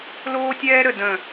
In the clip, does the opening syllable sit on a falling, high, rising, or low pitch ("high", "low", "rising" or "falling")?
high